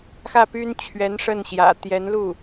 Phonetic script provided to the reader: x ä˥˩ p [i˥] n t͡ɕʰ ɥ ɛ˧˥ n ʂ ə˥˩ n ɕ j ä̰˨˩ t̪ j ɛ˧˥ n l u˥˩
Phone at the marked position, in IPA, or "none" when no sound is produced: y˥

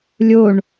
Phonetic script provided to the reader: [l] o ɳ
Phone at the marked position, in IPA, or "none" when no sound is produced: lʲ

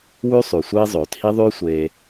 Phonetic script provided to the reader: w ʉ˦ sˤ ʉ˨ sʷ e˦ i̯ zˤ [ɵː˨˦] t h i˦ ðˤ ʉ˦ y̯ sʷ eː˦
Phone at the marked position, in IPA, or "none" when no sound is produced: ɵː˨˦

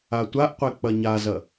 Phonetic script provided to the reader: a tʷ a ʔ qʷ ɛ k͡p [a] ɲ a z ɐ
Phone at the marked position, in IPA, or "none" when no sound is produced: ɐ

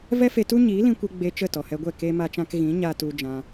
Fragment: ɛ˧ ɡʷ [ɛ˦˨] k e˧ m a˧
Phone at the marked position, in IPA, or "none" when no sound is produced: ɛ˦˨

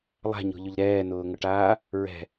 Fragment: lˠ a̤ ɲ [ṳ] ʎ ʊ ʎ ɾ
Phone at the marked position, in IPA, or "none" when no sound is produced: o̤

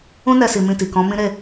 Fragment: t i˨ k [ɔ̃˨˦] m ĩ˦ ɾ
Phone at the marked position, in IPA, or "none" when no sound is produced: ɔ̃˨˦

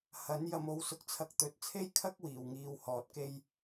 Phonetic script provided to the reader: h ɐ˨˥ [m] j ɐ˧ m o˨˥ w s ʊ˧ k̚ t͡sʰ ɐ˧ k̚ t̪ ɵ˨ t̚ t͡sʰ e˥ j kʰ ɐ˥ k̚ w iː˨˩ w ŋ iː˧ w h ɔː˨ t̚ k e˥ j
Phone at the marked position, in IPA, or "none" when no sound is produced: n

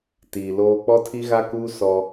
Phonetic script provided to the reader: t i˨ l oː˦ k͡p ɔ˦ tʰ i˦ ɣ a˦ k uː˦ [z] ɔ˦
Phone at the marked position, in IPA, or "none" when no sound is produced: s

